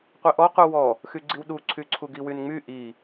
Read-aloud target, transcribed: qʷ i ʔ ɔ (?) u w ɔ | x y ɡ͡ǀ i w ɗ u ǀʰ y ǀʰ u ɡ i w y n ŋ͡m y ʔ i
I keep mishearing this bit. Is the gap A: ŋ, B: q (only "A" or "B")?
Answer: B